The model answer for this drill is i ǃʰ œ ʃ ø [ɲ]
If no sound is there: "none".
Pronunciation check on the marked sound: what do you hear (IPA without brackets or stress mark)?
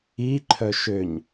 ɲ